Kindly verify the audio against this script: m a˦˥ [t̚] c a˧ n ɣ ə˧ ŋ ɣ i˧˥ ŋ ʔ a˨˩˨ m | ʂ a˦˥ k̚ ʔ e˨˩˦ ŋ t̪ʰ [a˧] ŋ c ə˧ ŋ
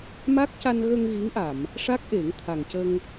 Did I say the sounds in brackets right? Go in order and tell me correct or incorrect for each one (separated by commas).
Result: incorrect, incorrect